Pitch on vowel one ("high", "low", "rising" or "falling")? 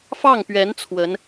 falling